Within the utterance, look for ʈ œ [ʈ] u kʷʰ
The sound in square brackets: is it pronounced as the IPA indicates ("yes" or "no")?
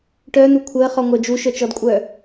no